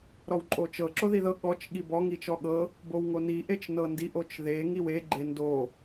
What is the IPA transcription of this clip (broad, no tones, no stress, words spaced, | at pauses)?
ɾɔwǃʼot͡ʃɤ ǁoðiðɤ ɠɔt͡ʃ ɠibɔŋ it͡ʃɔɠɤ | bowŋoni ʔet͡ʃnɤndiʔ ot͡ʃðe ŋiwe ɡ͡ǃendo